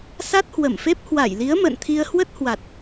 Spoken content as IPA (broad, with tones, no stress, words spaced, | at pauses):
sa˦˥t̚hwə˧˩mfe˦˥p̚ hwa˧˩jli˨˦ə̯mə̰ː˧˨n t̪ʰi˧ə̯hwə˦˥t̚hwa˨˩t̚